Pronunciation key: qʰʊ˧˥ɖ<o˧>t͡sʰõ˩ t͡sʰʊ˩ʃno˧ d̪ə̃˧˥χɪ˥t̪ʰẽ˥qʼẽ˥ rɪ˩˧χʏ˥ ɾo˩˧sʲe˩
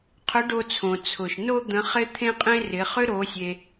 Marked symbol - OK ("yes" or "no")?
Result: yes